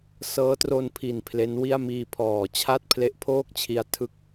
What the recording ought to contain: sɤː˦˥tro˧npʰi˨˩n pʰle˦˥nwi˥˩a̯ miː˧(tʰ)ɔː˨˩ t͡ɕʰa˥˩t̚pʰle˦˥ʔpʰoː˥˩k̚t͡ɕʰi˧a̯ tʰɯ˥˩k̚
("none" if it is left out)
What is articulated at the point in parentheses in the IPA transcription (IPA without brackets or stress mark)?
pʰ